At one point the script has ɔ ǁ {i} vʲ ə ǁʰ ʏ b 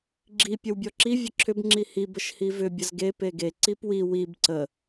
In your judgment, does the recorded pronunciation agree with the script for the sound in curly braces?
yes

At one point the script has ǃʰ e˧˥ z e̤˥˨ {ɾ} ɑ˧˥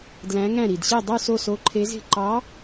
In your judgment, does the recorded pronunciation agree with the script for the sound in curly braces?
no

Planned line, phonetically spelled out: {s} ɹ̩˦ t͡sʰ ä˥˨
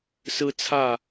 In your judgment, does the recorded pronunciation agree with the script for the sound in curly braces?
yes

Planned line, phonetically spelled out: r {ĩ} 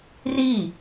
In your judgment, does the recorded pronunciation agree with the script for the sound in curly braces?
no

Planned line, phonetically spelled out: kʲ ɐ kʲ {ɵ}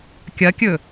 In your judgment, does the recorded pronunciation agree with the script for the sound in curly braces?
yes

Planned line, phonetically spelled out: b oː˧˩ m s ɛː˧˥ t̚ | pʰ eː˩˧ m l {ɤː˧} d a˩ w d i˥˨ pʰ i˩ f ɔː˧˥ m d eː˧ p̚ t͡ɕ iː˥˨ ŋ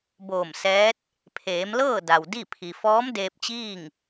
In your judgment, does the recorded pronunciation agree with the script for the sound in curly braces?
no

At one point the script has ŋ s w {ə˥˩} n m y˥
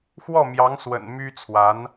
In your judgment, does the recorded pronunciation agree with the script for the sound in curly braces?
no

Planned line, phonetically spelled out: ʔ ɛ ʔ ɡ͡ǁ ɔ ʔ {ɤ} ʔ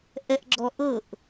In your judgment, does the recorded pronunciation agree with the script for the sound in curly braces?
yes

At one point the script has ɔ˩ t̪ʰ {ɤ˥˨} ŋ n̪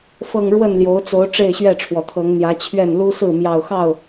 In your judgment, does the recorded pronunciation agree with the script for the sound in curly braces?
no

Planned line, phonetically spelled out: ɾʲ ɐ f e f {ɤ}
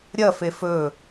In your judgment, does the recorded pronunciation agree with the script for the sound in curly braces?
no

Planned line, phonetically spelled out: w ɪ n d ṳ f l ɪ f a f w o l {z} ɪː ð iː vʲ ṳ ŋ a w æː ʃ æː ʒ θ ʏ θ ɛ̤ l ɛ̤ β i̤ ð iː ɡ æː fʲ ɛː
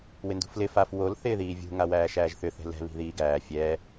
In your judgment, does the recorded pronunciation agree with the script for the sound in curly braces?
no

